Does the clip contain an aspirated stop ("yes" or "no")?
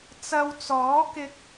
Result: no